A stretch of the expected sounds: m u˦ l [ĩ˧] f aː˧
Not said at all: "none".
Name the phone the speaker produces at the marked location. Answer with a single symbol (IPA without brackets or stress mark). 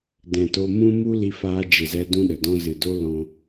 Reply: i˧